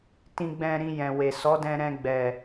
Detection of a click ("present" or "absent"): absent